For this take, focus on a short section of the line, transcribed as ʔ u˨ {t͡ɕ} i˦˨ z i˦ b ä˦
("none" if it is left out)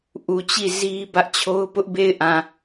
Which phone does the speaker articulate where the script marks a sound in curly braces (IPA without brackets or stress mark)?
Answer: t͡ɕ